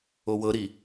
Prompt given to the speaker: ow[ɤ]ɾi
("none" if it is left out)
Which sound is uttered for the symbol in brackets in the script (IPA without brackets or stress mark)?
ɤ